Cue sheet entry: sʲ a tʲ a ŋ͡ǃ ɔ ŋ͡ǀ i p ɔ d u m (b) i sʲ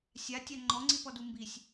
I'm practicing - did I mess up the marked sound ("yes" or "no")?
no